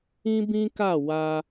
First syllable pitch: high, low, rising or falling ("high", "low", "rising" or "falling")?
high